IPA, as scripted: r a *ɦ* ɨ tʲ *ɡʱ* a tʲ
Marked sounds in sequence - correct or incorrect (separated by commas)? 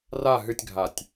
correct, correct